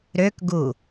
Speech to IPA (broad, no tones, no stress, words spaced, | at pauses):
ɾøkɡu